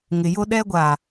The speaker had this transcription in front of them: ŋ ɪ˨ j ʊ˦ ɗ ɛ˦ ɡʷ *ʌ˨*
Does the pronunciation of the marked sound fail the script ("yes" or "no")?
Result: yes